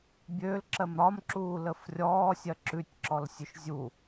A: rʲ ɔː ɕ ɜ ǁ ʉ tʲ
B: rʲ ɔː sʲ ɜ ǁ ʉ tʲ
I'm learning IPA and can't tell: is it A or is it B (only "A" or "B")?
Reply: B